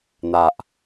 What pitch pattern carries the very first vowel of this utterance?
low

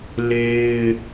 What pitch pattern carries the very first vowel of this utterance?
high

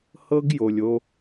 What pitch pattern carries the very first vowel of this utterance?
high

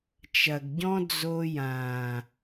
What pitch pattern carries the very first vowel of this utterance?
low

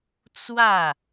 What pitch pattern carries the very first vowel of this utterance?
falling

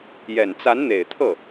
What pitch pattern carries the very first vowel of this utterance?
low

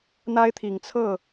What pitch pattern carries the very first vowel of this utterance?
high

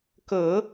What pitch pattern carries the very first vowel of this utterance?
low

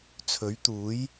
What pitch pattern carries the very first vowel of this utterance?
rising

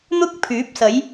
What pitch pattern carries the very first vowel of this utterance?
high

